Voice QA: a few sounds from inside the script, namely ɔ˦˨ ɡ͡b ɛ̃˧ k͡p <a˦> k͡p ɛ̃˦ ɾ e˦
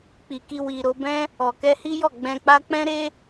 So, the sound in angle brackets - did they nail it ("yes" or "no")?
yes